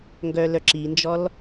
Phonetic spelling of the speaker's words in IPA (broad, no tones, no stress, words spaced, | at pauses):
ŋɡœlœǁind͡ʒɔl